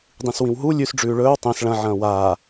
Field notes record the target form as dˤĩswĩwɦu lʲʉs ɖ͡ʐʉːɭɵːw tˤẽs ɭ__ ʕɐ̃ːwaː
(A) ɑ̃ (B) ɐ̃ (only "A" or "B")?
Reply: B